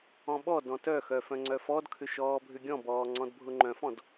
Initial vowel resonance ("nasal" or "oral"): nasal